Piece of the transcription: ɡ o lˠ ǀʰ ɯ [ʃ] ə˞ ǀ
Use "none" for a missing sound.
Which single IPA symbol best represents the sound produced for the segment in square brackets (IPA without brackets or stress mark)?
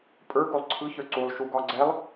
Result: ç